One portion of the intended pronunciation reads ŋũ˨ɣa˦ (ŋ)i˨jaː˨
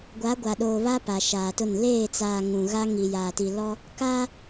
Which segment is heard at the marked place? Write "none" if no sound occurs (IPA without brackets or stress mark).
ŋ